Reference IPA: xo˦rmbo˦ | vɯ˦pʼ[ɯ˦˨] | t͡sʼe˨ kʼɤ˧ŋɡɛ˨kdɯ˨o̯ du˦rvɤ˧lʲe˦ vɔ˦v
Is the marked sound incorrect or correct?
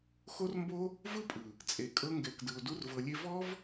incorrect